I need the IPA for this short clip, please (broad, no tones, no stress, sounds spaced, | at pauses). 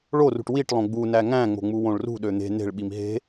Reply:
ɭ o r ṳ ʈ w i ʈ lˠ õ ɡ͡b u n æ ŋ æ̃ ŋ͡m o̤ ŋ͡m u w õ ɭ r ṳ ɗ ø n̪ e̤ n e̤ ɭ ɓ i m ɦ e̤